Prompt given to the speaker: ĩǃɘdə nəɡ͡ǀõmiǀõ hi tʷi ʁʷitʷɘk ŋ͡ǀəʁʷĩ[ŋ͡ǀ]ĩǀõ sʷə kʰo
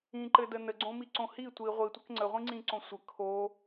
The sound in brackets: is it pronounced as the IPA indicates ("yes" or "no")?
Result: yes